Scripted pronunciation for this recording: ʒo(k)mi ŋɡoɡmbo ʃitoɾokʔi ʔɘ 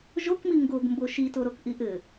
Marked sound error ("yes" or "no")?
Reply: no